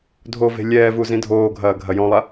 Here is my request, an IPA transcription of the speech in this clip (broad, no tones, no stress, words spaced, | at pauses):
dʱove̤ lʲɛːvu zĩdʱoːɡʱɐː ɡʱɐjɔ̃lˠa